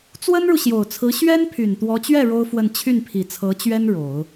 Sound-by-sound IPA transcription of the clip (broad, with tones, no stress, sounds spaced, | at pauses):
t͡s w ə˥ n ɻ u˨ ɕ j o˨˩ ʊ̯ t͡sʰ ɹ̩˧˥ ɕ ɥ ɛ˥ n pʰ y˨˩ n t̪ w ɔ˧˥ t͡ɕ ɥ ɛ˥˩ ɻ o˥ ʊ̯ f w ə˥˧ n t͡ɕʰ y˥˩ n pʰ i˨˩ t͡sʰ ɤ˧˥ t͡ɕ ɥ ɛ˥ n ɻ o˨˩˦ ʊ̯